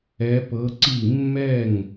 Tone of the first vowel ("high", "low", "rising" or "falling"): rising